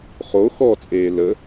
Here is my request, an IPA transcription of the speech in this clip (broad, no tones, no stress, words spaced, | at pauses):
χo xɔt͡sʼeː lə